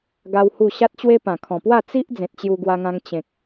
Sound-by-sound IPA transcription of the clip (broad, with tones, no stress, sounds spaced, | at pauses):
ɡ a˦ w h u˥˧ ɕ a˦ t̚ t͡ɕ w e˦ p ã˨˩ kʰ ɔ̃˨˩ p w a˥˧ t͡s i˦ ʔ d͡z ẽ˨ t̚ t͡ɕ j u˧ ɡ w a˧ ŋ ã˧ ŋ t͡ɕ ẽ˨ k̚